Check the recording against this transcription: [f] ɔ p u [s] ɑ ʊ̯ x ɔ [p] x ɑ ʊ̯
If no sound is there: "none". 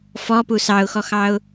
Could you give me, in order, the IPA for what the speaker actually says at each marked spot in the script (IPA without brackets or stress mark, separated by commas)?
f, s, none